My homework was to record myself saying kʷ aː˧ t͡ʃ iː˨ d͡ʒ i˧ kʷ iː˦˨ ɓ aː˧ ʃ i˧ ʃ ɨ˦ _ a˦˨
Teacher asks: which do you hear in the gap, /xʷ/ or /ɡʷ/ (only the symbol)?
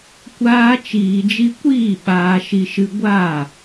ɡʷ